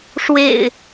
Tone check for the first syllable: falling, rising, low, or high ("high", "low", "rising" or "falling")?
low